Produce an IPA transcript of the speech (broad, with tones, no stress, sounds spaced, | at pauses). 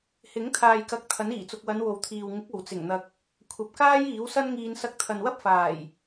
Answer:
h ɪ˨˥ ŋ t̪ʰ aː˨ j k ɐ˨ k̚ t̪ʰ ɐ˨˥ n iː˨˩ t͡s ʊ˨ k̚ w ɐ˨˧ n w o˨ w t̪ʰ iː˨ w ŋ ɪ˨˥ k̚ o˨˩ w t͡s ɪ˨˩ ŋ n̪ ɐ˨ k̚ | kʷʰ ɐ˨ p̚ k aː˥ j iː˨˥ w s ɐ˥ n ŋ iː˧ n s ɐ˧ k̚ t̪ʰ ɐ˨ n w ɐ˥ p̚ f aː˨˩ j